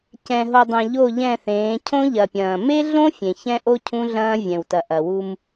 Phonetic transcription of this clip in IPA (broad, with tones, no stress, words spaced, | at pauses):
cɛ̃˨ ɦo˨dˤɛ̃˨ ʎo˦˨ʎɛ̃˦˨θẽː˨˦ cʰõ˦ʎɐ˨pʲɐ̃ː˨ me˦ɮõ˦ fʲẽ˨çɛ̃˦ʔo˦ cʰũ˦ɮɐ̃ː˦ vʲɛ̃˨wtɐ˨ ʔɐ˨wu˦m